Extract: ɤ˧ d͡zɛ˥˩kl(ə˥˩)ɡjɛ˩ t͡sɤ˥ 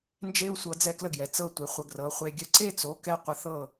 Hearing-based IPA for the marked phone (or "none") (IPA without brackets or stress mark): ə˥˩